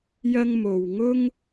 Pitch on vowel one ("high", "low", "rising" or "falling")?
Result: high